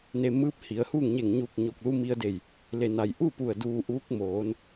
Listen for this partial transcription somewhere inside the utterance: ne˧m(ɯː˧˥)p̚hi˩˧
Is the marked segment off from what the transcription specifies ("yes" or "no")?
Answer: no